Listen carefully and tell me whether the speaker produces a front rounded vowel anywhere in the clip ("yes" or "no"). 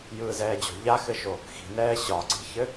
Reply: no